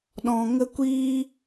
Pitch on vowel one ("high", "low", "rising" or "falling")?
low